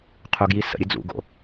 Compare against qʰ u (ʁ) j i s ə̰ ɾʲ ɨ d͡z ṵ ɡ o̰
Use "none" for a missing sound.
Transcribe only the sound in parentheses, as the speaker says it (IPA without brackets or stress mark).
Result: ɡ